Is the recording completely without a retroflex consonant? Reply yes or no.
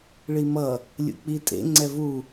no